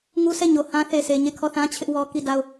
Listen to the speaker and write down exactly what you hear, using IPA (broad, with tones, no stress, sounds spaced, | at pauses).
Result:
ŋ u˦ s ɛ˦˨ ɲ o˨ h ã˦ θ e˨ s e˨ ɲ e˦˨ kʰ ɔ˦˨ θ ã˦ t͡ɕʰ ɪ˦ ʔ w ɔ˦ k i˦˨ d a˦˨ ʊ̯